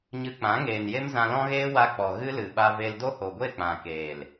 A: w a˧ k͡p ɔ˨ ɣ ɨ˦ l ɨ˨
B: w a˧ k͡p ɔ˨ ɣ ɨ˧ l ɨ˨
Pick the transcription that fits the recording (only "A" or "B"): A